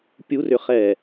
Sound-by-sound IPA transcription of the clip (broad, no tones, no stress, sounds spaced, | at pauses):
pʲ u r ʏ χ ɛ